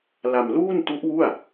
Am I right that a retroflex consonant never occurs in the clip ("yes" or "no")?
yes